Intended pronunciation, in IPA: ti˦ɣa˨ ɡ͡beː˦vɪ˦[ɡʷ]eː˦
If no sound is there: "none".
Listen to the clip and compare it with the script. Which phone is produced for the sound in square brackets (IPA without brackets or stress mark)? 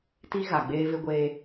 ɡʷ